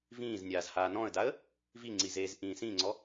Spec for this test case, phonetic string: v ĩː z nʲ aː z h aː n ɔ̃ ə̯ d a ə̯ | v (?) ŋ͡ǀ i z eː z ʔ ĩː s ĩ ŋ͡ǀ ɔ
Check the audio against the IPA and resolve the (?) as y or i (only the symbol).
i